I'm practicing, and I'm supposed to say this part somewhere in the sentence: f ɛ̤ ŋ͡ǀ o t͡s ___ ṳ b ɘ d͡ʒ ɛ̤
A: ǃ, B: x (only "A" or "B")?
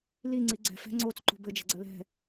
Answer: A